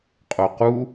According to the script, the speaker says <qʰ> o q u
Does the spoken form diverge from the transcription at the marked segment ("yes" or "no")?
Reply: yes